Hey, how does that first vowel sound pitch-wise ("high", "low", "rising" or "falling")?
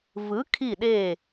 rising